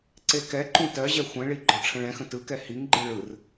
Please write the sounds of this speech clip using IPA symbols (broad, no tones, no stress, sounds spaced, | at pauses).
ǀ e k ɛ ǃ ũ t ɜ ʑ ɛ xʷ ɛ̃ ɭ i ɡ͡ǃ ɔ ʈ͡ʂʰ ə̃ ɭ ɛ̃ x ə̃ t ɯ k ɛ h i ŋ ɡ͡ǃ ɯ ɭ ɯ r